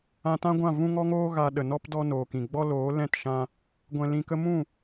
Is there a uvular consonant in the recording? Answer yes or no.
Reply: no